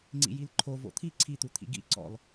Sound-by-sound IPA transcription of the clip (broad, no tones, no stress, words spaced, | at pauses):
ŋ͡ǀḭjilǃʰo vo̰t̪ʰi ǀʰit̪ut̪ʰḭ ɡḭ ǀɔ̰l